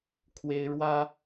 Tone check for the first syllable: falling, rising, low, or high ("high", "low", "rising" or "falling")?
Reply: high